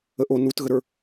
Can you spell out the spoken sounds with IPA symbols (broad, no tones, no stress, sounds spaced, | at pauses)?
ə ʔ o n u t ɣ ə ɾ ə˞